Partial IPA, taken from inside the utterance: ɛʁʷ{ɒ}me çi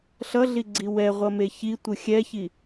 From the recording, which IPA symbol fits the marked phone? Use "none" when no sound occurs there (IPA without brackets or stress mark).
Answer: ʌ